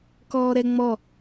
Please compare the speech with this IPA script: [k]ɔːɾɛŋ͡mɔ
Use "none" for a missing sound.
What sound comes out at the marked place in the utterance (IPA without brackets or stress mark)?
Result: k